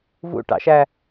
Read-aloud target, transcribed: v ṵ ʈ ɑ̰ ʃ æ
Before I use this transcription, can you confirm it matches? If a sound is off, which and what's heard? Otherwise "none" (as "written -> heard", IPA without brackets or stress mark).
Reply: none